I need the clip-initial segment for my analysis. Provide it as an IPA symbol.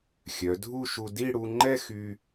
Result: xʲ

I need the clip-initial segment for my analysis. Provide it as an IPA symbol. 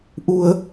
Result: ʔ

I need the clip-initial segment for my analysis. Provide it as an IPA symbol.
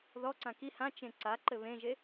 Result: ð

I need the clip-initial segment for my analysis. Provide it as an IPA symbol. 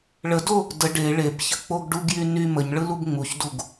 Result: ɭ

